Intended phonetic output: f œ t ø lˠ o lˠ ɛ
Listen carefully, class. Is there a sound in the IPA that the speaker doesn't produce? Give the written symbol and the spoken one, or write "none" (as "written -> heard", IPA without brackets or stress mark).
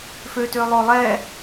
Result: œ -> ø